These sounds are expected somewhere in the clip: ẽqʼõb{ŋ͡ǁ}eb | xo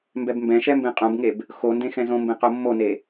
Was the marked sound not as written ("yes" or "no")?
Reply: yes